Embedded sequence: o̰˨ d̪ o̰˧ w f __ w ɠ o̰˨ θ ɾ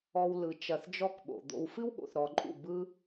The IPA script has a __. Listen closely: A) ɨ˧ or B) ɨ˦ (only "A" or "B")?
B